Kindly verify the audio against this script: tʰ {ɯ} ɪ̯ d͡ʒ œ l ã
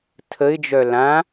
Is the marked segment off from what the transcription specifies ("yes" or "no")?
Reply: yes